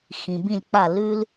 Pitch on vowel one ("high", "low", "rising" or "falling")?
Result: low